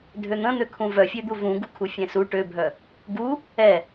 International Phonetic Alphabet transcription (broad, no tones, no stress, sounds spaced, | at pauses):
dʱ ø n̪ ə̃ n̪ ø kʰ ũ v œ fʲ ø d̪ u v ũ ɡ u kʰ u fʲ ɛ̃ s u ʈ ø bʱ œ | ɡ u | ɛ